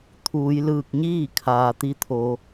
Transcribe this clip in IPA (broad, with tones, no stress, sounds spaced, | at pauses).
t̪ʰ uː˩˧ j l ɯː˧˩ k̚ ɲ iː˥˨ kʰ aː˩ t̪ i˧ t̪ʰ o˩˧